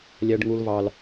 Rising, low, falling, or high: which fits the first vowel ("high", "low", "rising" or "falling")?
high